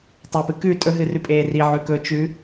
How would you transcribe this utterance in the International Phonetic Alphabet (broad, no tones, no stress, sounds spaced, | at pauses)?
tˤ ɵ p ɨ k ʉ tʼ ɵ ɦ ɨ r ʉ pʼ eː r i ʕ ʉ k ɵ t͡ʃ ʉ